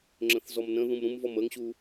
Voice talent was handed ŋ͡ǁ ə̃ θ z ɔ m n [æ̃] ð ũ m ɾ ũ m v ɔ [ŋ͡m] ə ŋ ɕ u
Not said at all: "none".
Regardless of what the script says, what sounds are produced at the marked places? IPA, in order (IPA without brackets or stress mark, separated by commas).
ə̃, m